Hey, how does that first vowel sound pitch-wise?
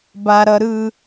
high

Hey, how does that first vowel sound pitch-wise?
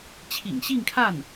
low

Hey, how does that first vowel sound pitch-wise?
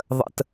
high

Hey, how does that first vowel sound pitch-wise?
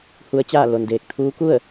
rising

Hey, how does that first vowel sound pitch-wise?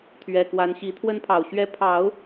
low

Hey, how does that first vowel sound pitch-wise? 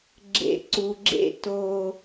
low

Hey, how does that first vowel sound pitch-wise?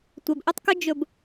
low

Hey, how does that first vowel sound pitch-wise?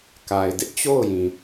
low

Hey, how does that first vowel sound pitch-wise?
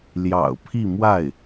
low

